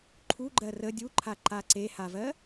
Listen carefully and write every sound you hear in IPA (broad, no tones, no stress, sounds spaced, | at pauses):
ǃʰ u ɡ͡ǃ ɜ r ə dʲ u ǃʰ a ǃ a ǀ e h a v ɜ